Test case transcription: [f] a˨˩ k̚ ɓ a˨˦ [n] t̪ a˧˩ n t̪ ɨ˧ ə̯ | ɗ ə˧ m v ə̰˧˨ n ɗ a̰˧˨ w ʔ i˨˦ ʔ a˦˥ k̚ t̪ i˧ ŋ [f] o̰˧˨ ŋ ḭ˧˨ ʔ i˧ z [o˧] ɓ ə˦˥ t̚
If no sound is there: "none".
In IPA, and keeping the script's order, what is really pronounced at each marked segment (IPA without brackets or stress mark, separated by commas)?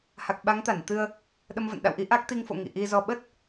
h, ŋ, f, ɔ˧